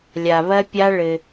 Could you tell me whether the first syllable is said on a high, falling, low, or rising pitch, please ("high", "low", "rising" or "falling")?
low